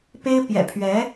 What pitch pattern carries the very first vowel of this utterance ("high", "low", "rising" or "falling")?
high